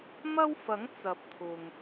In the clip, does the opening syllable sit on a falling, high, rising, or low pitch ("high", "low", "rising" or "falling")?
high